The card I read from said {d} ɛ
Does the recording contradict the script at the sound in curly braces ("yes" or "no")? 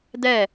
no